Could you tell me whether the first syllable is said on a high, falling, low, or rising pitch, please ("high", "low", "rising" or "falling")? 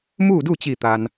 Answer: falling